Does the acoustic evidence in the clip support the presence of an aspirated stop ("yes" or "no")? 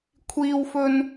yes